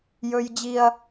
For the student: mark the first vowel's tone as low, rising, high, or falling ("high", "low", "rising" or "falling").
high